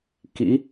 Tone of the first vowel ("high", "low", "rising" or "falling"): rising